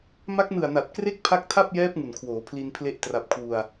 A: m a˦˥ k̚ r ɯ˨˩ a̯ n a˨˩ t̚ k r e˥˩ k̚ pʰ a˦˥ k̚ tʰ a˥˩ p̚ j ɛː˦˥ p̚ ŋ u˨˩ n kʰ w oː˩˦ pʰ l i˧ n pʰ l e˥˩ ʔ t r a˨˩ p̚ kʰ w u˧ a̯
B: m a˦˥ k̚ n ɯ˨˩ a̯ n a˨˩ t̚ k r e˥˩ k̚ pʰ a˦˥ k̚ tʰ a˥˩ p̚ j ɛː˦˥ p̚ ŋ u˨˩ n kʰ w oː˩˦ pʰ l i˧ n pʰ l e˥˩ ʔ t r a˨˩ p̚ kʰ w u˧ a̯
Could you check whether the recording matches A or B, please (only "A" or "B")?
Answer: B